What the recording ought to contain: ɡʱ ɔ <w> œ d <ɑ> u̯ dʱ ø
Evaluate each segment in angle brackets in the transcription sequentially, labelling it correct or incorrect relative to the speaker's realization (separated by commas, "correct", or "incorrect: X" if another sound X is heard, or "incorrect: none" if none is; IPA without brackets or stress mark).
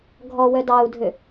correct, correct